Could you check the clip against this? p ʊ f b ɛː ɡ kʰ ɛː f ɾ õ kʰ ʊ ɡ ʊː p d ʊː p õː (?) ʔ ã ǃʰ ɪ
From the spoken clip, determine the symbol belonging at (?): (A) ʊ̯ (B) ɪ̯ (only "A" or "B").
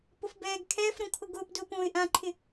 B